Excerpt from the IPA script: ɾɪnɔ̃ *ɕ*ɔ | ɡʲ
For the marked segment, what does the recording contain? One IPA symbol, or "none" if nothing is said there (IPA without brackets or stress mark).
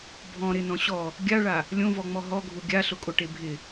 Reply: ɕ